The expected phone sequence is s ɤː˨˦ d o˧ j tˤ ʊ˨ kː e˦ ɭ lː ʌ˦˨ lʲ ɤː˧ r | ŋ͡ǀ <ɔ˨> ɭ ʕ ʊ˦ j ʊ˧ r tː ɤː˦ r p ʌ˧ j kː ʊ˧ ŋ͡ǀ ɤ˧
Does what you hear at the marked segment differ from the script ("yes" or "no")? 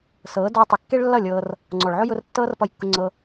no